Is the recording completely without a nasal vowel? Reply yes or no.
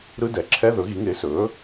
yes